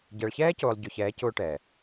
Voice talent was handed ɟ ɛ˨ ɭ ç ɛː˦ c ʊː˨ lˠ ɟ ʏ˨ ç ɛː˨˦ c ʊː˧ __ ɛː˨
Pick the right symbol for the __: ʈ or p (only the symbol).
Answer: ʈ